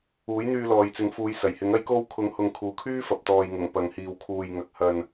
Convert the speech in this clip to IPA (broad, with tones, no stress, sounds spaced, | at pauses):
uː˨˥ j n̪ yː˧ l ɔː˨ j t͡s ɪ˨˥ ŋ f uː˨˧ j s ɐ˨˩ j h ɪ˨˥ ŋ ɐ˧ j k o˧ w kʰ ʊ˨˥ ŋ h ʊ˨ ŋ kʰ uː˨ kʰ yː˥ f ɐ˨ p̚ t̪ ɔː˨ j ŋ ʊ˨˩ ŋ p ɐ˨ ŋ h iː˨ w kʰ uː˨ j ŋ ɐ˨ k̚ h ɐ˨ n